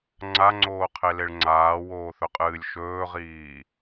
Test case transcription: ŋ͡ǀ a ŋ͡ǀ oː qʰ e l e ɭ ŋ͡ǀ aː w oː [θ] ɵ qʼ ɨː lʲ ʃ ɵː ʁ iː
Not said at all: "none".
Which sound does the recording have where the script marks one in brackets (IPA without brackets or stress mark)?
θ